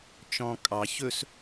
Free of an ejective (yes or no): no